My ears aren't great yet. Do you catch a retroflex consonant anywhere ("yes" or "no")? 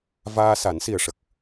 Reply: yes